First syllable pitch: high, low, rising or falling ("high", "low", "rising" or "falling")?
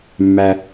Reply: low